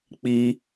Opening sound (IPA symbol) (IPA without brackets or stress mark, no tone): k͡p